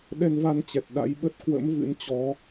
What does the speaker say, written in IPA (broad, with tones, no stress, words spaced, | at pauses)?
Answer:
ɗɛ˧nva˧nt͡ɕɛ˨˩t̚ ɗa̰˧˥jɓə˦˥t̚ kwə̰˧˥mvɨ̰˧˥nt͡ɕɔ˨˦